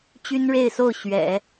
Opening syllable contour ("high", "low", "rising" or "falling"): high